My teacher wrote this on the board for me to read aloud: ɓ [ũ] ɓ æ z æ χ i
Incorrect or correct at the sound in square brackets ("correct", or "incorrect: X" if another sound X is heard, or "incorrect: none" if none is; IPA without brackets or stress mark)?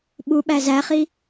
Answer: incorrect: u